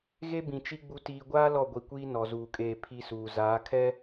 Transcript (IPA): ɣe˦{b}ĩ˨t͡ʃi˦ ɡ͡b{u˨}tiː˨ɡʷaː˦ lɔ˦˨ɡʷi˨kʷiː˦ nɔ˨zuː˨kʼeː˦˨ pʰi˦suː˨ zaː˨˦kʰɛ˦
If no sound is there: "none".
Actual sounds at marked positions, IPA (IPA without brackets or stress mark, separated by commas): b, u˨